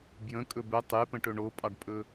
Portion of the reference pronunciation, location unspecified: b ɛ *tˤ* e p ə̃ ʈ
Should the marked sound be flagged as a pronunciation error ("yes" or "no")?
no